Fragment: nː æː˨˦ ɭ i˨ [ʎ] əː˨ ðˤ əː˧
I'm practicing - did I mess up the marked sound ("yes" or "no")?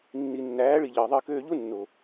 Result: no